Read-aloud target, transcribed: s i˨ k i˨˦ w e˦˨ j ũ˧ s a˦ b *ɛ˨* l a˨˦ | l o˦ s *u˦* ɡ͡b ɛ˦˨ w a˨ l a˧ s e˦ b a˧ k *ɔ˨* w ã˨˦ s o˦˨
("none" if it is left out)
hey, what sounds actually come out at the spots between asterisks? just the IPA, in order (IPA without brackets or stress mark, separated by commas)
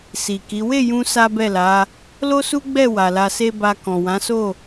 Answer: ɛ˦˨, u˦, ɔ̃˨